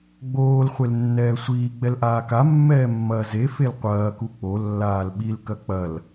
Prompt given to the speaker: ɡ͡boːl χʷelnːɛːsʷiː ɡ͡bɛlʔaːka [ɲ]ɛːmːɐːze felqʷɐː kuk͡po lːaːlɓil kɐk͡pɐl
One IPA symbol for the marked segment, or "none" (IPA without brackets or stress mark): mː